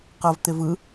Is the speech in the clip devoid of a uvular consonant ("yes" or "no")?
no